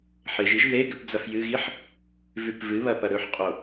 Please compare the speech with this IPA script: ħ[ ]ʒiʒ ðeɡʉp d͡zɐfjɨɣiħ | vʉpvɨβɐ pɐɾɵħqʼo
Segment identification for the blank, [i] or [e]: e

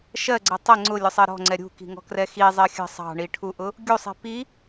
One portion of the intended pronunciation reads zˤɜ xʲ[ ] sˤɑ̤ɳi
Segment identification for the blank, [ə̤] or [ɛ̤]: ə̤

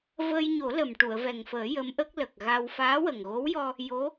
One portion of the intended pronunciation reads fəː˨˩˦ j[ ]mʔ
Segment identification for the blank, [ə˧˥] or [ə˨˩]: ə˧˥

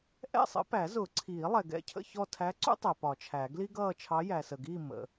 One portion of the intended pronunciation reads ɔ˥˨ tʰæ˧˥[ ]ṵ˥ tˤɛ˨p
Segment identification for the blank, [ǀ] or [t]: ǀ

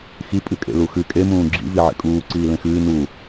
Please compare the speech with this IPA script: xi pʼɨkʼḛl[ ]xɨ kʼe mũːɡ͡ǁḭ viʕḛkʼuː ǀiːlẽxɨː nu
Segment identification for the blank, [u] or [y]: u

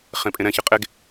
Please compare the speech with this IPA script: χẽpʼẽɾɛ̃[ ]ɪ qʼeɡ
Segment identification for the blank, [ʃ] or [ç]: ç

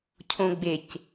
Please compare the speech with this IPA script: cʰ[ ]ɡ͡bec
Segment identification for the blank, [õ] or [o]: õ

